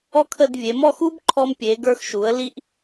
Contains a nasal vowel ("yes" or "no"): no